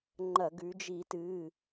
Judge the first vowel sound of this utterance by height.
low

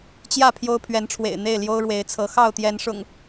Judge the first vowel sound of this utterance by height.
low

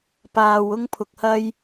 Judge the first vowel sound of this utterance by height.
low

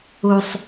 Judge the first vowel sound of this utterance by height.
high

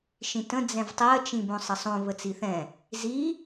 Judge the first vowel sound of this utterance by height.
high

